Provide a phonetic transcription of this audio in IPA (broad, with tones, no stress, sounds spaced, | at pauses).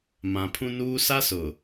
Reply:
m ã˨ pʰ ũ˦ n uː˦ s a˦ s ʊ˨